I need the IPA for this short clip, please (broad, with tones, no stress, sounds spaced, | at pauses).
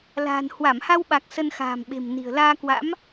l a̤ː˨˩ n h w a˧˩ m h a˧ w ɓ a˨˩ k̚ s ə˧ n x a̤ː˨˩ m ɓ e̤˨˩ m n i̤˨˩ ə̯ l aː˧ k w a̰˧˥ m